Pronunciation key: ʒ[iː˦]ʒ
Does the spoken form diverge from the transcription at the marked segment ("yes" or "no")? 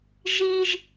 no